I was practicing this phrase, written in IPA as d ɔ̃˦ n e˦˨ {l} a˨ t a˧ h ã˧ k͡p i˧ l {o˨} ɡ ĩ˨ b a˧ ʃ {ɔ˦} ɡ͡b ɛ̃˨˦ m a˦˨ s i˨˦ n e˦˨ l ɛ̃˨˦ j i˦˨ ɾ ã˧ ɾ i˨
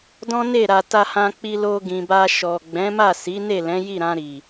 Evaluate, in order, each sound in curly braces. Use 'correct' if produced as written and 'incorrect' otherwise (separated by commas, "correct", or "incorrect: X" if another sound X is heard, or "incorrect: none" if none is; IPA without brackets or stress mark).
incorrect: ɾ, incorrect: o˧, incorrect: ɔ˨